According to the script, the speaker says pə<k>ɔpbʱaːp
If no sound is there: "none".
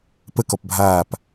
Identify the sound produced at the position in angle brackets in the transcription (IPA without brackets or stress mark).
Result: k